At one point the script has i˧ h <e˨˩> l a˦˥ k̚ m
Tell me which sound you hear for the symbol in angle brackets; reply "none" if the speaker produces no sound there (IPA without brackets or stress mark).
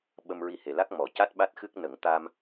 e˨˩